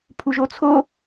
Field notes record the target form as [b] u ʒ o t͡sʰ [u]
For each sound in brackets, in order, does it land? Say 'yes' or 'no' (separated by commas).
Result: no, no